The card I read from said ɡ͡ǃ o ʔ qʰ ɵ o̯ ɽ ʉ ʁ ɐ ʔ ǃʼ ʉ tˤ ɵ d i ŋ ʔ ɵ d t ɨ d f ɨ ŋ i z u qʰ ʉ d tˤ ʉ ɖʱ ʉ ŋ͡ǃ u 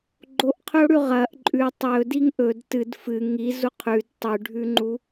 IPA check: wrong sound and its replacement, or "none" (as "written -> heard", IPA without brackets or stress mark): none